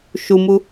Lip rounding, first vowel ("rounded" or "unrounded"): rounded